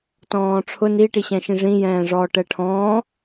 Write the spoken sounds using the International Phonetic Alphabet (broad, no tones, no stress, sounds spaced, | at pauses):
t ɔ̃ː ʈ͡ʂʰ ʊ n i ʈ i ɕ ɛ̃ ʃ ĩ ʐ ĩ j ɛ̃ː ʐ ɔː ʈ ɛ ʈʰ ɔ̃ː